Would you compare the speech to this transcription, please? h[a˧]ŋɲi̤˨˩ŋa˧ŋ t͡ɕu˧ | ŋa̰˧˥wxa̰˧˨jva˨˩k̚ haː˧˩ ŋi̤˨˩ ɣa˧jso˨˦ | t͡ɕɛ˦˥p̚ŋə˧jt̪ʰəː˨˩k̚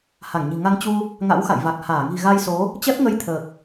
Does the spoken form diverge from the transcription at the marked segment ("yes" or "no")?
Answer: yes